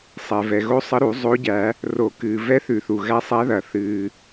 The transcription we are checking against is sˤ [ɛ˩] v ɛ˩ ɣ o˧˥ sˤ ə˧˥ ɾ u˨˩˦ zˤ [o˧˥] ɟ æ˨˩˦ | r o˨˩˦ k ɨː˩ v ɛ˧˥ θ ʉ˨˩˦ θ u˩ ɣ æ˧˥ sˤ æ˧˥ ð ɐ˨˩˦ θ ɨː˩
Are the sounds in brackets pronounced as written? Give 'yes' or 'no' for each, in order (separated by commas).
yes, yes